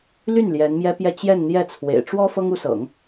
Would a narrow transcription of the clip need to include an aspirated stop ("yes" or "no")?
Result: yes